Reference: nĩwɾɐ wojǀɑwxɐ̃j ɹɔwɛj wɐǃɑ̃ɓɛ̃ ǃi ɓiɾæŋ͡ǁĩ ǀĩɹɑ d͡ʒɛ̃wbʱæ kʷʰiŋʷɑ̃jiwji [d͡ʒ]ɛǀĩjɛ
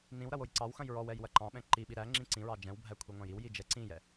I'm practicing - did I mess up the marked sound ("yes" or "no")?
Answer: no